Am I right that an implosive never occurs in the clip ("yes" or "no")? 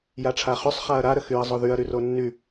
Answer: yes